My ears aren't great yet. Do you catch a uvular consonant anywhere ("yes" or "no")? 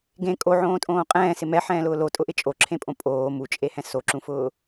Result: yes